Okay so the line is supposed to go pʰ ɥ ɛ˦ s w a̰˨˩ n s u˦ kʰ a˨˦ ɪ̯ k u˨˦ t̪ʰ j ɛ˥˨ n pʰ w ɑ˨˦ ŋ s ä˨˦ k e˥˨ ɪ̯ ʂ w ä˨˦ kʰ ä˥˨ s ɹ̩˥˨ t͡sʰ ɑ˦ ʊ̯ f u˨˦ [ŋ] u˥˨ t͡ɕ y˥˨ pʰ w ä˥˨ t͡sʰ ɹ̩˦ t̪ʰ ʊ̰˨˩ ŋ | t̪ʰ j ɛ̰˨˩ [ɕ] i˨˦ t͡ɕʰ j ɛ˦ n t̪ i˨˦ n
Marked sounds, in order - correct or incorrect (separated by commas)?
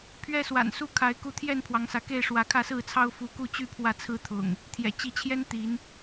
incorrect, incorrect